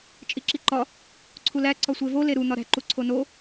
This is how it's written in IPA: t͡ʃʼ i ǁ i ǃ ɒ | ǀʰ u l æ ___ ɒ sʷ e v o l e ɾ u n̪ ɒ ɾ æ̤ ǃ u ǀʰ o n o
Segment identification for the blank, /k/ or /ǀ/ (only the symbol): ǀ